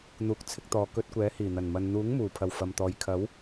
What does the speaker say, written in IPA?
n̪uː˨˥k̚t͡sʰɪ˧k̚ t̪ɔː˨kɵ˧t̚kʷɛː˨˥ hiː˨˩n̪ɐ˨˩nmɐ˨n n̪uː˨˥ŋmuː˨˩pʰɐ˨˩w fɐ˨mt̪ɔː˨j kʰɐ˨˥w

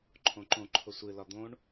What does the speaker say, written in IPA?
ǃʰõǃõ ǃʰʊsʷɨ lɒd̪õɳ

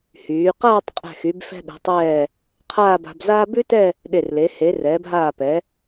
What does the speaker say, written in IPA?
hyː˩˧qaː˥˧tˤ qʼɛ̤˧˩xy˩˧bfɛ̤˧ ɗɛ̤˩˧tˤɛː˧˩ | qʰaː˥˧ba̤˧bzaː˥ bʉ˥tɛ˥˧ | ɗe˧˩rle˩˧ he˩˧ rɛː˩˧bɦaː˧˩pɛ˩˧

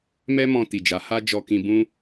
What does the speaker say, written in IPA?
mɛ˧mɔ̃˨ ti˨d͡ʒa˨˦ ha˧ d͡ʒɔ˧kĩ˧ bũ˧

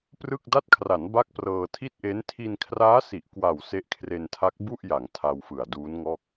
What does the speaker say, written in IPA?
prɯ˥˩k̚ da˦˥t̚kʰra˩˦n ba˥˩k̚prɤː˧ tʰi˥˩t̚ʔe˦˥n tʰi˧nkʰraː˦˥si˨˩ʔ kwa˨˩w se˦˥ʔkʰre˧ntʰa˦˥k̚ bu˥˩ʔja˩˦ŋ tʰa˧wfɯ˨˩a̯ duː˦˥nŋɔː˥˩k̚

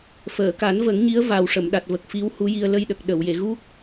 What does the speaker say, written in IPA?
fəː˨˩˨ka˨˩˦nvə˨˩˦ŋ ɲi˧˥ə̯va˨˩w ʂə˨˩˨mɗa˨˩t̚ və˨˩k̚fi˧˥whu˧˥ji˧ə̯ lə˧jɗə˨˩k̚ ɗə˨˩˨wje˨˩˨ ɣu˦˥k̚

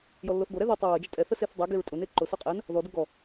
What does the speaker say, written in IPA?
jɔlːoθɡoɾɛ ðɔtˤʊ ɹə d͡ʒətʼɛθə seθdˤɛɡeɹ tʼʊne ǃʊso qʼɛn | ðɔdə ɡɔ

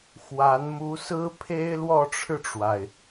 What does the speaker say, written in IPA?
xwa˧˥n mu˧˥sɹ̩˥pʰe˥ɪ̯ lwɔ˥˧ʈ͡ʂʰɻ̩˥˩ʈ͡ʂwa˩ɪ̯

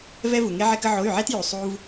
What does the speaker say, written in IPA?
vɛ˧vu˩ŋe˧ ʕɛ˧kə˧ ʕo˩˧˩y̯ʕɛ˧t ju˩ sˤu˧v

